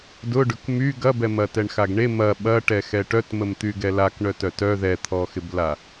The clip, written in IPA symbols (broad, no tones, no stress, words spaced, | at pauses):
dʊ ɖʊkmy ɡɐbɛmɐ tɛɳxaɡɳe mɐ ɓɐʈɛ xɛʈœtməmt̪y ɡɛlakɳœtœ tœ ðɛt̪ʰɔxɪbla